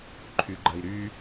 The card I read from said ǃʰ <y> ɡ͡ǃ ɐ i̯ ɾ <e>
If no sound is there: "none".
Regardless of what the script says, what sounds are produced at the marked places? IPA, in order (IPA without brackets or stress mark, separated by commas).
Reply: y, y